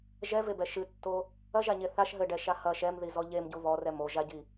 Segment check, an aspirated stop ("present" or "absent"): absent